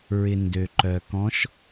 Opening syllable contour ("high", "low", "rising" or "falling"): low